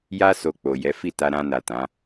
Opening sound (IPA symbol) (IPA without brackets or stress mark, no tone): j